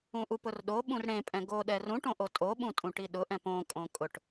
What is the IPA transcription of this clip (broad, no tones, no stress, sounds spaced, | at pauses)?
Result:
ũ ʔ u p ʊ r ɗ o ɓ ũ r ɽ ẽ pʼ ɛ̃ ɡ o ɗ ɛ r ũ ʈ õ ʔ o tʼ o ɓ ũ tʼ ũ ʈ i ɗ ʊ ʔ ɛ̃ p õ kʼ õ kʼ ʊ ʈ